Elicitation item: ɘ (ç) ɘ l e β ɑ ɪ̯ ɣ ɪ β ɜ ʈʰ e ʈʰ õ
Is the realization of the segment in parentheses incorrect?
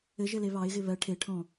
yes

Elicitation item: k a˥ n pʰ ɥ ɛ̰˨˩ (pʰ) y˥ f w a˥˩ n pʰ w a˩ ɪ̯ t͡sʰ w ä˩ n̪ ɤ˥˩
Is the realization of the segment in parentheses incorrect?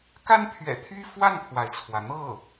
yes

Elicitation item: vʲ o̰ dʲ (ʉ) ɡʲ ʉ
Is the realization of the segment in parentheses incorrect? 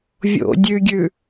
no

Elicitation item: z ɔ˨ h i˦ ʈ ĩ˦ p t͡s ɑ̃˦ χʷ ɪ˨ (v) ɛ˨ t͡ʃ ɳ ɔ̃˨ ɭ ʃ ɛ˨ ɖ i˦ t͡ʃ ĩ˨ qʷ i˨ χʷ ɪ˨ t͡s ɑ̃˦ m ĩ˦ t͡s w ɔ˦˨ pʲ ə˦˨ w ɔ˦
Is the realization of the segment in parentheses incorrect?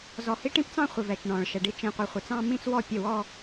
no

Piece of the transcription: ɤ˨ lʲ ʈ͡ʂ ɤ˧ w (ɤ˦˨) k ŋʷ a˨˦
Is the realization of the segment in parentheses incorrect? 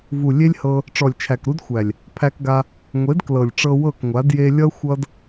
no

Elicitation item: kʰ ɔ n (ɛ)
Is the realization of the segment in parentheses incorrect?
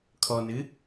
yes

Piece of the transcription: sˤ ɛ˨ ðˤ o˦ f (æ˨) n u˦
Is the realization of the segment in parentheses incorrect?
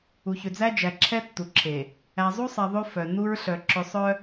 yes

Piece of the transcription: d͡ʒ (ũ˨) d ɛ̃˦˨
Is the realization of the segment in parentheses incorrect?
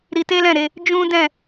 yes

